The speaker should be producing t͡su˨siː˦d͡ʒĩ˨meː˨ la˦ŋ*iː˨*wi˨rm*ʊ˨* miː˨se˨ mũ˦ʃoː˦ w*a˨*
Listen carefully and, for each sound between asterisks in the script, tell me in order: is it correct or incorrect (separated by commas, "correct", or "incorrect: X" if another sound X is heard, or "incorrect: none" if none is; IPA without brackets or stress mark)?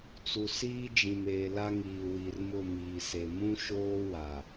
correct, incorrect: ʊ˦˨, correct